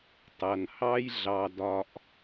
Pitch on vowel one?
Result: low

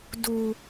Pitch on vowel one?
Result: low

